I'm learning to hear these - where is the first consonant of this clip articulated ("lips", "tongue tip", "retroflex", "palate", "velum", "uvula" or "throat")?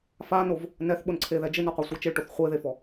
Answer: lips